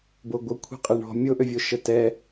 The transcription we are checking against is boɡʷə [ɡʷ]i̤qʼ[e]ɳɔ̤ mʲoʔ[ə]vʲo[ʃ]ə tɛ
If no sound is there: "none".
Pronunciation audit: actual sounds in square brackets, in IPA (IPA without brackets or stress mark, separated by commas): kʷʰ, e, ø, ʃ